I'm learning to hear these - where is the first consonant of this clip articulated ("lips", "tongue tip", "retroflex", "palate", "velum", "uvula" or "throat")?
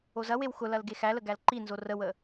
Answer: tongue tip